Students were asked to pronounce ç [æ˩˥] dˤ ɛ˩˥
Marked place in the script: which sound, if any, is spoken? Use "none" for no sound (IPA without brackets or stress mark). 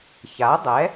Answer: a˩˥